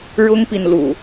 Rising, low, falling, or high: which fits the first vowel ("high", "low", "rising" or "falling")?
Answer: high